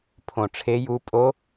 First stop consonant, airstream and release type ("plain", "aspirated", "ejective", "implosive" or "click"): aspirated